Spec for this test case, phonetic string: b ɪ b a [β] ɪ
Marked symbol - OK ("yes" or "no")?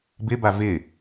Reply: no